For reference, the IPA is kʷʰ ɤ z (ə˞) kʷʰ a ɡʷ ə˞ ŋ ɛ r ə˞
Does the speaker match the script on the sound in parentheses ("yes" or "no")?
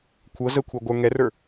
no